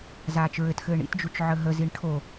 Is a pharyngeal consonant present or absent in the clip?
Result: present